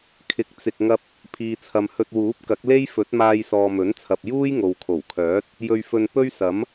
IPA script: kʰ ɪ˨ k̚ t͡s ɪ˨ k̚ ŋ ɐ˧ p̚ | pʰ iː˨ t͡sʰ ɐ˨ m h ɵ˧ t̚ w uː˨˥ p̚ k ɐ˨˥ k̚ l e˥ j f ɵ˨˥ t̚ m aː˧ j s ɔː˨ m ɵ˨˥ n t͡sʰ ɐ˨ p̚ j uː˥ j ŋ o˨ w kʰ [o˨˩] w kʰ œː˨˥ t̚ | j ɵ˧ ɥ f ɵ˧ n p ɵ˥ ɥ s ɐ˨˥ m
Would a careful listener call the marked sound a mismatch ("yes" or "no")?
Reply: no